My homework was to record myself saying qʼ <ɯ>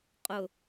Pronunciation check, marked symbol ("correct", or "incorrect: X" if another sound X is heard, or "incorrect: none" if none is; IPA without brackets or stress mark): incorrect: ʊ